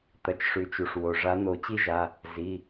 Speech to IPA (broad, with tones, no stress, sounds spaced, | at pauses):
t̪ ɐ˩ t͡ʃ ʂ ʉ˩ t͡ʃ u˩ ʂ w o˩ ʐ a˨˦ n̪ o˨˩˦ t͡ɕ i˥ ʒ a˩˧˩ | z i˩˧˩